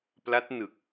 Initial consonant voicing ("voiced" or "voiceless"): voiceless